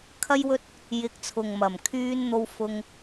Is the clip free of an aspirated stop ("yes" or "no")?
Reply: no